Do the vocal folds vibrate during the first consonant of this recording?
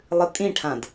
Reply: yes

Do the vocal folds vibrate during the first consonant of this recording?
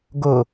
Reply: yes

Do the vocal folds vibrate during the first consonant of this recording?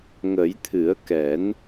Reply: yes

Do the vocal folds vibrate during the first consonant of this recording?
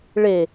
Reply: yes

